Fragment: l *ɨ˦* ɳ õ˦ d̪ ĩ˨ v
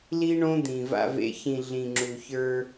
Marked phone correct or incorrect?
incorrect